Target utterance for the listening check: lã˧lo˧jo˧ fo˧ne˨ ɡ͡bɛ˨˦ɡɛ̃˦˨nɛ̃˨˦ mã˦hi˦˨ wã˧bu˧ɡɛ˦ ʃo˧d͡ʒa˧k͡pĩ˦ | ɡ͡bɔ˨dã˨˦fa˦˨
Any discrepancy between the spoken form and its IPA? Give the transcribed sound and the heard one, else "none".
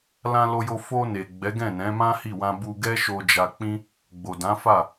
ɔ˨ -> o˨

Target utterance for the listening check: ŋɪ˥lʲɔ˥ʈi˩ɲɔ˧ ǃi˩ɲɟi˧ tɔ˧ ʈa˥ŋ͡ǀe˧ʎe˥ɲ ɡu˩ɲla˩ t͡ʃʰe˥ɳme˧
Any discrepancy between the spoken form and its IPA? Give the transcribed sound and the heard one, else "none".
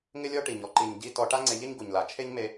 ɳ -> ɲ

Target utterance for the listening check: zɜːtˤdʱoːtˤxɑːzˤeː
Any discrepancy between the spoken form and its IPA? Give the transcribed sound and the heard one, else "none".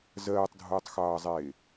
none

